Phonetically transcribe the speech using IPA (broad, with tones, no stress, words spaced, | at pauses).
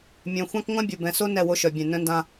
mʲœ̃˨ xʷã˦kŋʷã˦bʲo˨ bɛ̃˨so˦ nɛ˦˨wo˦ʃœ˨bʲɛ̃˨ nœ̃˦ndã˦